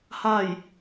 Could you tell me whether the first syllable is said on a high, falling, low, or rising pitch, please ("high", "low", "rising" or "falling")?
falling